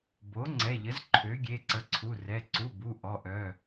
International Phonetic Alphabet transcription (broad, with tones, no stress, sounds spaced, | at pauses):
b o˩˥ ŋ͡ǀ ɛ˩˧˩ ʎ ə˩˥ z ǃʰ ø˩˥ ɡʲ e˩˧˩ ǀ ə˩˥ ǀʰ u˩˧˩ r ɛ˩˧˩ ǀ u˩˧˩ b u˩˧˩ ʔ ɔ˩˧˩ ʔ œ˩˧˩